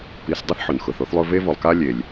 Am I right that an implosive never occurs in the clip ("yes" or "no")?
yes